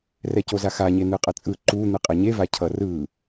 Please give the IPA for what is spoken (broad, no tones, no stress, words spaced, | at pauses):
rɛcozaxa ɲen̪ɯqʼʌt͡sʼɯ ǃu n̪ɯqʼɛɲeva cʰʌrɯ